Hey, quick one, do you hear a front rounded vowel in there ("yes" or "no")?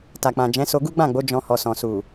no